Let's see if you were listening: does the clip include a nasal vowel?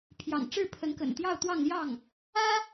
no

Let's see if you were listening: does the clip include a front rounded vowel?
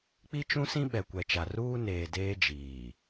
no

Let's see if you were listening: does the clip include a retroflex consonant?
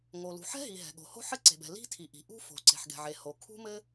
no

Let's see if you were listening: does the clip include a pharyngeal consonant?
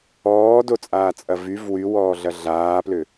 no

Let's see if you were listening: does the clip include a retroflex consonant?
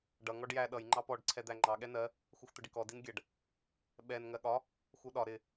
yes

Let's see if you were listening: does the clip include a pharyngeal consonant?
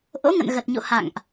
no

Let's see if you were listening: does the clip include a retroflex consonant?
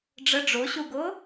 yes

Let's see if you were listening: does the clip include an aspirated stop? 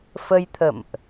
yes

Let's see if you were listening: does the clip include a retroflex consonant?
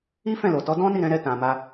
no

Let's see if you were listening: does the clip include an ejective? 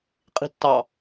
yes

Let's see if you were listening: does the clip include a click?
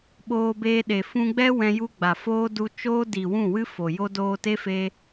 no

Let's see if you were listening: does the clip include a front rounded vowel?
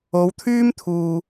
yes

